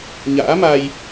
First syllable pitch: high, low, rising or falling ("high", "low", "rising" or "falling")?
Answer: rising